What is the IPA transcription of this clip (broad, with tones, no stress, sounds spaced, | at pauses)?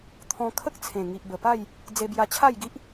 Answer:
t̪ʰ ɔ̃˧ kʰ ə˦ k̚ t͡sʰ ẽ˨˩ ŋ i˨ ʔ b ə˨˩ p a˥˧ j | d͡z e˧ b j a˧ t͡ɕʰ a˥˧ j ɡ i˦ ʔ